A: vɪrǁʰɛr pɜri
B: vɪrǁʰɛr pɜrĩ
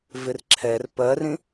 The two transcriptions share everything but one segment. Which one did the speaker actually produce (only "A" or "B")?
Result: B